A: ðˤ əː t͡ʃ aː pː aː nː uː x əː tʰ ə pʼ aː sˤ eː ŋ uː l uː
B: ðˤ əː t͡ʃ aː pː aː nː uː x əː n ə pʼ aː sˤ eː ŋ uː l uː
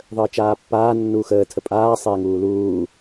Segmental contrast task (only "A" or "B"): A